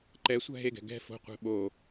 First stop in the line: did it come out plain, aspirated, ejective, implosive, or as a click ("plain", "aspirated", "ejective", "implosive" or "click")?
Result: click